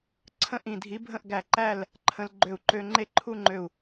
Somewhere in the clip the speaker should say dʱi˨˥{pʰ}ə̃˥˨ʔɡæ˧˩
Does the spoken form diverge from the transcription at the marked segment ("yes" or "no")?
yes